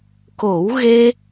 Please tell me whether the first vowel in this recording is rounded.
yes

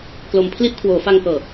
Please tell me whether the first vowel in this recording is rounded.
yes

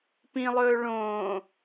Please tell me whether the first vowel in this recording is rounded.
no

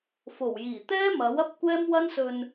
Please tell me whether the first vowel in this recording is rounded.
yes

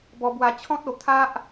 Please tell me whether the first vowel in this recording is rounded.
yes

